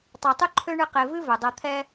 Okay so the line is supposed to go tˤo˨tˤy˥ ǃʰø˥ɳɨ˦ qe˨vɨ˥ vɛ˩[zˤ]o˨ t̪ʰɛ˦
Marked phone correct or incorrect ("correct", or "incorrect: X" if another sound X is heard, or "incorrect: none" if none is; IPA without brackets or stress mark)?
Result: incorrect: dˤ